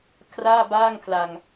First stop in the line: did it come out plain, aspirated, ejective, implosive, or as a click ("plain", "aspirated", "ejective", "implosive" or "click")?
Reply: aspirated